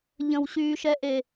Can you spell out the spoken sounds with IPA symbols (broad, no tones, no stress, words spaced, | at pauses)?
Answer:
ʎə̃wɕyːʃɛʔe